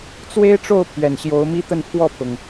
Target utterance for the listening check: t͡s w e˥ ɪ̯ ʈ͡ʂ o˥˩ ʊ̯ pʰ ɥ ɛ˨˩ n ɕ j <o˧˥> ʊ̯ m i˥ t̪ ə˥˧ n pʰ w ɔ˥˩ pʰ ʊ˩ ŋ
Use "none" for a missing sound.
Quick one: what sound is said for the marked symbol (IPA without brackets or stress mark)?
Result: o˧˥